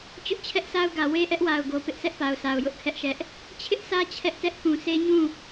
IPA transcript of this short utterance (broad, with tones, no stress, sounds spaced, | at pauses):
t͡ɕ ʊ˦ ʔ t͡ɕʰ ɛ˦ ʔ s a˦ ʊ̯ ɡ ä˨ w e˦ ʔ ɛ˦ ʔ w a˨ ʊ̯ ɡ o˨ p ɪ˦ ʔ s ɛ˦ ʔ p a˨ ʊ̯ sʰ a˨ ʊ̯ j ʊ˦ ʔ kʰ ɛ˦ ʔ ʃ ɛ˦ ʔ | t͡ɕʰ ɪ˦ ʔ sʰ ä˦ t͡ɕʰ ɛ˦ ʔ t ɛ˦ ʔ k ũ˨ sʰ e˦ ɲ ũ˦˨